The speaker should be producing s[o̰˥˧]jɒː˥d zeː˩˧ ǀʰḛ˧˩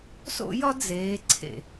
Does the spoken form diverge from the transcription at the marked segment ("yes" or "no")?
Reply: no